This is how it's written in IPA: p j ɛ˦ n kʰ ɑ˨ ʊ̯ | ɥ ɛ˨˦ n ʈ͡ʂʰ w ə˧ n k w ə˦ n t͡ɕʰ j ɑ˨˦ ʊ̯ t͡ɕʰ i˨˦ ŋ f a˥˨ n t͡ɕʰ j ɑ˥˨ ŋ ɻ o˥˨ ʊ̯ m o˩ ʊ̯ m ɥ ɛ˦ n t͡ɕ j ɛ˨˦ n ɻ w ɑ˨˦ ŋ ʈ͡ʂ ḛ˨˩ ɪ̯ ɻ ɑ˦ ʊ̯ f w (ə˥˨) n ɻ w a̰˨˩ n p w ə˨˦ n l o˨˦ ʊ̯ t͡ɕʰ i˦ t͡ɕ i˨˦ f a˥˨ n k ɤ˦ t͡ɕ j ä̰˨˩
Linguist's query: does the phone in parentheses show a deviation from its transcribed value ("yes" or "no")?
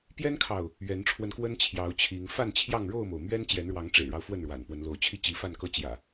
no